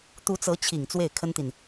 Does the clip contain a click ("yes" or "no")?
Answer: no